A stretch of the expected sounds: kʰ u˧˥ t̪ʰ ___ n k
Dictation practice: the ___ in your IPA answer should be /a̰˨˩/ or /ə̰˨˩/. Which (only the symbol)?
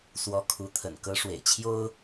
ə̰˨˩